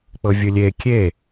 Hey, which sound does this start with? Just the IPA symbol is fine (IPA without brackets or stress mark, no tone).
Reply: k͡p